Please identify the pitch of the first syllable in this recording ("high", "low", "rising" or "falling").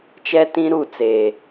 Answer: high